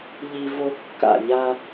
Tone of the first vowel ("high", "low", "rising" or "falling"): high